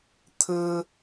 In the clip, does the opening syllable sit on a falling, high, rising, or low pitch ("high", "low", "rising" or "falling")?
high